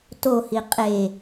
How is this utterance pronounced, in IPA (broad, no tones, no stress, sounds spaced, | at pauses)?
t o h i qʼ e